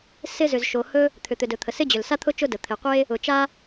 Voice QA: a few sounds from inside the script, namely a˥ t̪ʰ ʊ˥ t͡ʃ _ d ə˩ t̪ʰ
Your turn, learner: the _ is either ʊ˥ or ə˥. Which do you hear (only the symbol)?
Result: ʊ˥